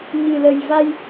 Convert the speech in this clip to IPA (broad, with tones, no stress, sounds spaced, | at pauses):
ɲ ɨ˨˩ l ə˨˩ j v a˧ j